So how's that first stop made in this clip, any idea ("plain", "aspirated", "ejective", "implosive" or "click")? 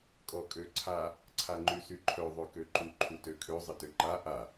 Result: ejective